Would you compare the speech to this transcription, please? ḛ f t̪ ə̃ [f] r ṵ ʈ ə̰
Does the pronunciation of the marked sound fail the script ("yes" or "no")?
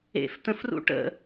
no